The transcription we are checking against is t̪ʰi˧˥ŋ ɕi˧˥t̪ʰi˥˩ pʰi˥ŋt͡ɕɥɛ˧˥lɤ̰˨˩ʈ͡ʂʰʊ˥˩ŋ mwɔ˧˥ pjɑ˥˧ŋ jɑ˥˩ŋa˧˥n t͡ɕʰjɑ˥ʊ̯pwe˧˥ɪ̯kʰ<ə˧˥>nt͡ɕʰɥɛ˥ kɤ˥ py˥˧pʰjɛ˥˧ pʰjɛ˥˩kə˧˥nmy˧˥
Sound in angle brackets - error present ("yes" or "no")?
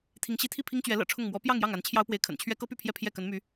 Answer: yes